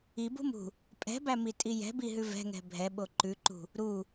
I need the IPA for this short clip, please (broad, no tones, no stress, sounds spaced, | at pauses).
i b ṳ m ṳ | pʼ ɛ̤ b æ m i tʼ i j ɛ̤ b i ɦ ʉ v ɛ̤ ŋ ɛ̤ bʱ ɛ ɓ o ǃ ʉ ǃ ṳ | ɾ u